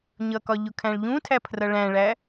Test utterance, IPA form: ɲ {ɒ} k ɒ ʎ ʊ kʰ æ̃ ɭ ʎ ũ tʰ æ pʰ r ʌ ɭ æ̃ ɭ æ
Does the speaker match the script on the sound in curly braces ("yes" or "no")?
no